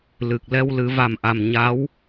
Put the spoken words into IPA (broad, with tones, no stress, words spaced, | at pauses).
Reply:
lɨ˨˩k̚ lɛ˧wlɨ˨˩˦va˨˩mʔa˨˩m ɲa˧˥w